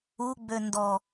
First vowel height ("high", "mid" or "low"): high